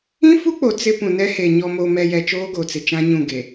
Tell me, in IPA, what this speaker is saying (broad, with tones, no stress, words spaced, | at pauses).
ĩ˦fu˦k͡po˨ t͡sɪ˦pũ˨ nɛ˦he˨ ɲɔ˨mo˨mɛ˨jɛ˨ t͡ʃoː˦ɡo˨t͡sɪ˨ t͡ʃã˦ɲũ˦˨ɡe˨